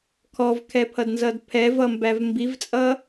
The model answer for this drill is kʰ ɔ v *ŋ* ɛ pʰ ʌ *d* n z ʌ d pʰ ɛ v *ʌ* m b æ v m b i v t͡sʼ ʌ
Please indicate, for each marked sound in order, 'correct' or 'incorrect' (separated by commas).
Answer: incorrect, correct, correct